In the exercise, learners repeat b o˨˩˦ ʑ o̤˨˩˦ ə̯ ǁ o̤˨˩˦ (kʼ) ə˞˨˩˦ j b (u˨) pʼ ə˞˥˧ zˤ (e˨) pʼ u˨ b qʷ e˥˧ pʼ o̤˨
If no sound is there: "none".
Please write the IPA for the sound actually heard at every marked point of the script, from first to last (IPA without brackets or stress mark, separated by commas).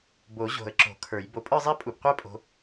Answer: kʰ, o˨, e˥˧